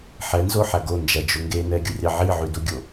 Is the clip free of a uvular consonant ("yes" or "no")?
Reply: yes